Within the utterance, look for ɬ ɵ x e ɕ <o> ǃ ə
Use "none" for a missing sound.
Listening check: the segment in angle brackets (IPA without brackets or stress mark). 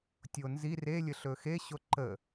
o